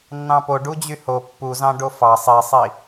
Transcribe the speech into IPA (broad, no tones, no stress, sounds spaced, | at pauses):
nː ɑ̃ p o ɖ u d͡ʑ y h o pː u z ɑ̃ ɖ o f ɑ sˤ i sˤ i